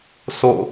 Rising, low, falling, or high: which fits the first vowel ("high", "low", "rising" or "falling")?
falling